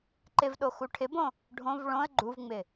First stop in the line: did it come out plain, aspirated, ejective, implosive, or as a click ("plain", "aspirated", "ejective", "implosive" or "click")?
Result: click